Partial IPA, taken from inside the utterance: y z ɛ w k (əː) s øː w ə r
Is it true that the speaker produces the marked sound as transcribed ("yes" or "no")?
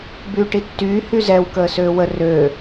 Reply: yes